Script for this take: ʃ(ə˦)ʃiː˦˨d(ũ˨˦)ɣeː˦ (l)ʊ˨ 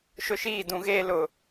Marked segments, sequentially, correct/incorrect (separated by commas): incorrect, correct, correct